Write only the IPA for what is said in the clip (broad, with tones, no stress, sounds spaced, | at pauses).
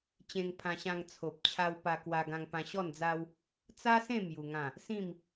t͡ɕ ẽ˧ ŋ pʰ ã˧ ɕ ã˧ ŋ t͡sʰ o˨ p̚ t͡ɕʰ a˧ w p a˧ k w a˧ ɡ ã˧ ŋ p ã˧ ɕ ɔ˥˧ n d͡z a˦ w | t͡s a˦ s ẽ˥˧ m j u˧ ŋ ã˥˧ | s ĩ˥˧ m